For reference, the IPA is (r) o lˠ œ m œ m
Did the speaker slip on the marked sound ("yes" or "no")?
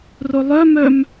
no